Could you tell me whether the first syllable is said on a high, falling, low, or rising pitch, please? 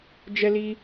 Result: high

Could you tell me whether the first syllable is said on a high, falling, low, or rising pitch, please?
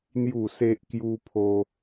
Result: falling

